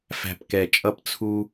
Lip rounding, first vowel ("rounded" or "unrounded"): unrounded